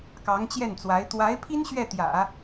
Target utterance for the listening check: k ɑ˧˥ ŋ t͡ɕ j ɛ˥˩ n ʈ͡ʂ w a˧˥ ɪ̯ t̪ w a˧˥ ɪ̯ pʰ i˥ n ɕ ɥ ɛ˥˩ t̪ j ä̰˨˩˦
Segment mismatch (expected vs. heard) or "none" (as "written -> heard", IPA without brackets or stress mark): ʈ͡ʂ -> t͡s